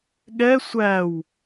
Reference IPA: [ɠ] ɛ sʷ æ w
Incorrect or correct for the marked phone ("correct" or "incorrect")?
correct